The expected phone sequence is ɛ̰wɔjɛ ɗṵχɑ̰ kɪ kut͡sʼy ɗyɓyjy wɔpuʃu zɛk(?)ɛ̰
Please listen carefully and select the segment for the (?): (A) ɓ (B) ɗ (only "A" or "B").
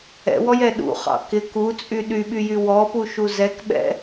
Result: A